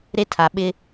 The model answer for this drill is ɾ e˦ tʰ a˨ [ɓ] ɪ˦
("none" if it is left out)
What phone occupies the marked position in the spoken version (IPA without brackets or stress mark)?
ɓ